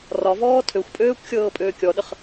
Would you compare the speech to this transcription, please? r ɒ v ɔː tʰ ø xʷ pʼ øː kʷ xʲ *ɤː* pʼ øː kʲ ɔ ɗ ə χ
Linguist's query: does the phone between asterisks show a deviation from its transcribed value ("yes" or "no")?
no